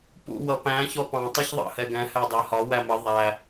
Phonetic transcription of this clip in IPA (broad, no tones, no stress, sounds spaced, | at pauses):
p ṵ w ʌ p æ̃ ç ɔ p ɑ̃ tˤ i ç ðˤ ɑ̰ h ɛ ɡ ɛ̃ h æ dˤ æ h ɒ w æ m ə ðˤ æ